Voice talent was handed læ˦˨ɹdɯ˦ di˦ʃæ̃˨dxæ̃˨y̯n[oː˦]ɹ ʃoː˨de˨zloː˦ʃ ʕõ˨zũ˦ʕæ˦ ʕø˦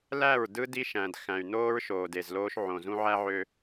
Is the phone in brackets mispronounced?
no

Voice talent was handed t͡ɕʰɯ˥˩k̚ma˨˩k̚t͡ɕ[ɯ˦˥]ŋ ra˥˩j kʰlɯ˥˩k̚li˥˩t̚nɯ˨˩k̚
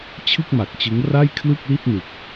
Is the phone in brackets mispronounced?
no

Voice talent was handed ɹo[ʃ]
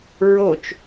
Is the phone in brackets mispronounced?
yes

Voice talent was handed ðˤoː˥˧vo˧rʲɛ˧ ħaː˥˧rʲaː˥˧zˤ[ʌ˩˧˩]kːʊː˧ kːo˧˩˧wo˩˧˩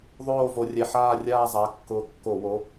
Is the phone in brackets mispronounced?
yes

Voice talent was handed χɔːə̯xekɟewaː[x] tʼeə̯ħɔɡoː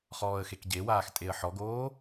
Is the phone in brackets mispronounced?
no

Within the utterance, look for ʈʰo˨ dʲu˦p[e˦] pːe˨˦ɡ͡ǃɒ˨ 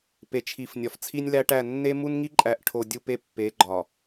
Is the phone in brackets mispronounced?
no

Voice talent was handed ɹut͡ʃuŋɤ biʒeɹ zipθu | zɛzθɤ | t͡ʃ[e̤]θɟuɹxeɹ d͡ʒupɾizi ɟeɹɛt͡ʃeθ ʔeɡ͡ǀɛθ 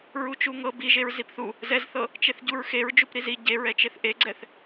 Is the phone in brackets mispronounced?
yes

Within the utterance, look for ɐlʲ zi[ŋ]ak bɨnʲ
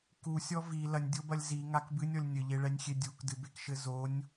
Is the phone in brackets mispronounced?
no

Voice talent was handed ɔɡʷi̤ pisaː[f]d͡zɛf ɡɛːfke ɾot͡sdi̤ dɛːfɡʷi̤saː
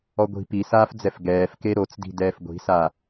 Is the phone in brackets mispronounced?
no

